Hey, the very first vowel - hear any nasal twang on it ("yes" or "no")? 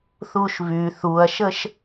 no